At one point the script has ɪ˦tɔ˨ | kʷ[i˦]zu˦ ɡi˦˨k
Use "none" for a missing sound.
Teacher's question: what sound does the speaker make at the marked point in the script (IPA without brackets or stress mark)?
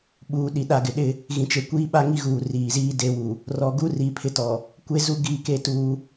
e˦